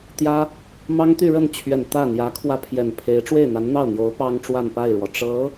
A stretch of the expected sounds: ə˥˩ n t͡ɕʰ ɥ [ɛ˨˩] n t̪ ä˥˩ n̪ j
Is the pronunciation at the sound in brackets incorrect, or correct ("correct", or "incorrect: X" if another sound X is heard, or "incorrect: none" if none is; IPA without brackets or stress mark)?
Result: correct